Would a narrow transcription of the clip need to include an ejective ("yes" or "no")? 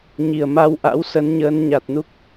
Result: no